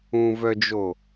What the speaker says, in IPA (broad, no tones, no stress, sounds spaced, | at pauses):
ũ v œ d͡ʒ o